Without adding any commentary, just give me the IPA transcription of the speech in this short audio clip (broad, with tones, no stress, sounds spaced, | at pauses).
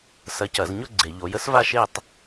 s ɐ˨˥ c ɐ˧˩˧ z ɲ ʊ˥˧ ɡ͡ǀ e˧˩˧ ʎ o˨˥ j ə˥ s v a˥˧ ʃ e˥˧ tˤ